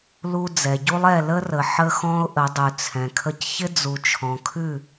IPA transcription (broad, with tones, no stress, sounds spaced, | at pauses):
l u˧ d͡z ɛ˨ ɟ u˦ lˠ ɛ˦˨ l ə˦ r ə˨ ħ ə˦ x ɔ̃˦ ʊ̯ ʔ ə˨˦ dˤ ʉ˨ t͡sʰ ɛ̃˨ kʰ ə˦ c ç ɪ˦ d͡z u˨ t͡ʃʰ ɔ̃˨ kʰ ʉ˦˨